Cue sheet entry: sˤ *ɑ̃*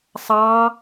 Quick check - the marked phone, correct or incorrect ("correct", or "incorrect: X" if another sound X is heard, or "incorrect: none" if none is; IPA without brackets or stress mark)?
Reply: incorrect: ɑ